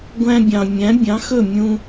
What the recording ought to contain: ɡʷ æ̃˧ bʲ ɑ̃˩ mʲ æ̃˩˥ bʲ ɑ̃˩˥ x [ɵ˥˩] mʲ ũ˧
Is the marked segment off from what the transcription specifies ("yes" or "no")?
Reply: no